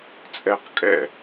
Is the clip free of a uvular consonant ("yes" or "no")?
no